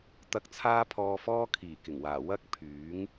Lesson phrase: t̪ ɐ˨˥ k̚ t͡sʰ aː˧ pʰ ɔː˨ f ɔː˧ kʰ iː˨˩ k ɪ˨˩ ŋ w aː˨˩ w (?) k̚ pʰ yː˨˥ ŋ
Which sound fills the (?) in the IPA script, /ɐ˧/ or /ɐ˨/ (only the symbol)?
ɐ˧